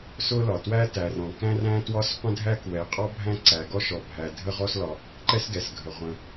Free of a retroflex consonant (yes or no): yes